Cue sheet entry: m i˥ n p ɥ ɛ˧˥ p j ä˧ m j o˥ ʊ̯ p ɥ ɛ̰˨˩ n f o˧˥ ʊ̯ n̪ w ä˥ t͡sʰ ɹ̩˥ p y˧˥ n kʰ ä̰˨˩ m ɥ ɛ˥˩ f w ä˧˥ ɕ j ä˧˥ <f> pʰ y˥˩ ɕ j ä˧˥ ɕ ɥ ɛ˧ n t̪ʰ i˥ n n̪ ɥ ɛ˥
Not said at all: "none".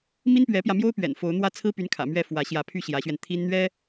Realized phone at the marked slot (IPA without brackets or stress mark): none